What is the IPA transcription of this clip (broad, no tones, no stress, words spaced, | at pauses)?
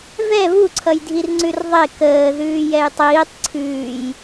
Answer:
vɛ βuǀʰʌjdʱir ŋ͡ǀʉrðˤe kəːðʉː jɛjtˤiːtˤ ǀʰʉːj